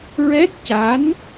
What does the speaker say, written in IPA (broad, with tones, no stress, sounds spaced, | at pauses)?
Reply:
ɹ ɛ˦˥ t̚ c a˧˥ n